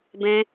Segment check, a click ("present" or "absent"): absent